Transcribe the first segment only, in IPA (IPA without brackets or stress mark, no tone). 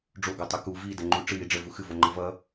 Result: ɖ͡ʐ